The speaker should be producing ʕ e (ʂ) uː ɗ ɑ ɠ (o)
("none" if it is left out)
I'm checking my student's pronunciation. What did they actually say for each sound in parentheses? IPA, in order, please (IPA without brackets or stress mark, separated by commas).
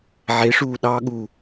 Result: ʂ, u